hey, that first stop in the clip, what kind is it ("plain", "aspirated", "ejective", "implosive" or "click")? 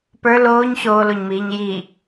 plain